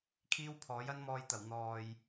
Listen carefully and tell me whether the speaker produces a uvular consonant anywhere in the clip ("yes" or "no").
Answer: no